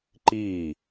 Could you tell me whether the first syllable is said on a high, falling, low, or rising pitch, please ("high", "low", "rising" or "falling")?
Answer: falling